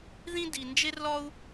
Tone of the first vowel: high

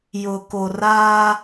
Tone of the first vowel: low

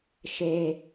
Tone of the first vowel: low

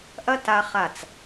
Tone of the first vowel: high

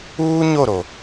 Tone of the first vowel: high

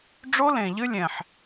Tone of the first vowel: high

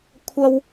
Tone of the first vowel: high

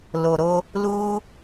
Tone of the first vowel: low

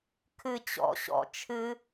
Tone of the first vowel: high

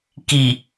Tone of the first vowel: low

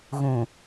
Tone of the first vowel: low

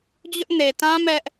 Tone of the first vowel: high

